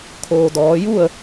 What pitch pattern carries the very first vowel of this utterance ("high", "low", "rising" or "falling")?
low